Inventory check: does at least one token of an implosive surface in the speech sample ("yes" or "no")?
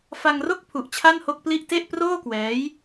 no